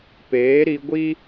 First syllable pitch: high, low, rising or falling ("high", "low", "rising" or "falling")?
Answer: rising